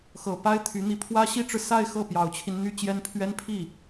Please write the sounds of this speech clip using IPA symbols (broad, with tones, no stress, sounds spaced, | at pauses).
x ɤ˨˩ p a˥ ɪ̯ t̪ʰ y˧˥ n̪ i˧˥ pʰ w ä˥ ɕ i˥ ʈ͡ʂ ɻ̩˨ s a˥˧ ɪ̯ x ɤ˥˩ p j ɑ˨˩ ʊ̯ t͡ɕʰ i˦ n n̪ y˥ t͡ɕ j ɛ˥ n pʰ ɥ ɛ˥ n pʰ i˥˩